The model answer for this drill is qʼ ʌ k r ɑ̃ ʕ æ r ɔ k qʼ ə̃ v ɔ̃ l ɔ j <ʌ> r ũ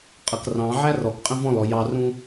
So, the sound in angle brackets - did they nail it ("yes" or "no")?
no